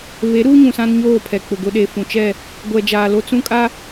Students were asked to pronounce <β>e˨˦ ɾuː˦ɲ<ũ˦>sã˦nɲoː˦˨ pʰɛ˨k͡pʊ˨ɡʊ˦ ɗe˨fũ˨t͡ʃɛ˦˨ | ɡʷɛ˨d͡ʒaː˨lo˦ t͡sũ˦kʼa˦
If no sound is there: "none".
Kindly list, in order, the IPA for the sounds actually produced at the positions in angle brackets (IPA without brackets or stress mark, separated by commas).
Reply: β, ũ˨